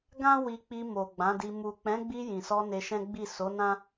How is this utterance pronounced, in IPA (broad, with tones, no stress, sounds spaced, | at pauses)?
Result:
ɡ ã˦ w i˧ k͡p i˧ m o˨ ɡ͡b ã˨˦ d i˧ m u˨ k͡p ɛ̃˨˦ ɡ͡b i˧ j ĩ˨ s ɔ˧ n e˧ ʃ ɛ̃˦ ɡ͡b i˦˨ s o˨˦ n ã˦